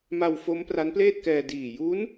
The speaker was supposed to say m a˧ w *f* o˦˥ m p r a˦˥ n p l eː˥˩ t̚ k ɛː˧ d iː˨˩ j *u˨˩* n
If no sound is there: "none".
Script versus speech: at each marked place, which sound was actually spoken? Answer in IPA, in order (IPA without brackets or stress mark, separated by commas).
f, u˦˥